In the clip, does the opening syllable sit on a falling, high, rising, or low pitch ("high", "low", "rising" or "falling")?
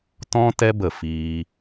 high